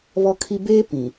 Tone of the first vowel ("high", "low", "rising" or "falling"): high